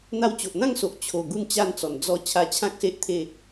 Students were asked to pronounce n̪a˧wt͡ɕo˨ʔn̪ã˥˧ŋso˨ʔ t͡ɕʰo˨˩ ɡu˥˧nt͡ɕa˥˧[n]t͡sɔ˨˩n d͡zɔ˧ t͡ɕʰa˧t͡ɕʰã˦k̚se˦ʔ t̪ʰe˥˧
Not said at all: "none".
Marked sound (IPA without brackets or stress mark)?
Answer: n